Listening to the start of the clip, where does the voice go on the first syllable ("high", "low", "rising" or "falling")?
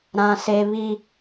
high